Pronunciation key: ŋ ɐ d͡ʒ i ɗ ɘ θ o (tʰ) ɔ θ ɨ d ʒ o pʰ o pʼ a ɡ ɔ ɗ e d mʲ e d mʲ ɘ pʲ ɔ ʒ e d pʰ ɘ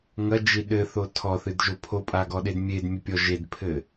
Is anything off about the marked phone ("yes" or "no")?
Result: no